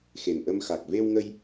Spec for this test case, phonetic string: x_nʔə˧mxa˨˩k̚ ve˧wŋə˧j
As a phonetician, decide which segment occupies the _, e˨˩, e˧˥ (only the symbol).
e˨˩